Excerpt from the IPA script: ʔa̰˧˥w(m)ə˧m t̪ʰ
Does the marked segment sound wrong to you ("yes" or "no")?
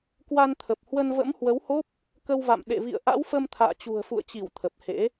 yes